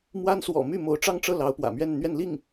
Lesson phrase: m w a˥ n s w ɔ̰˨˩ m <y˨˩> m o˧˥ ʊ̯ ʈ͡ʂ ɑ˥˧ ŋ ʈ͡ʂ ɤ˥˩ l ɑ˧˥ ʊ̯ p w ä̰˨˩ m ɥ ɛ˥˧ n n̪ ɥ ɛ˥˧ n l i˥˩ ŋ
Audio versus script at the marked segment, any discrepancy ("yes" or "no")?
yes